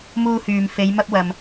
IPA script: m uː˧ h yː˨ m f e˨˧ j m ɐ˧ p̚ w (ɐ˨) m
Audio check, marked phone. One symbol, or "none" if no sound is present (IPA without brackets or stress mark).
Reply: ɐ˨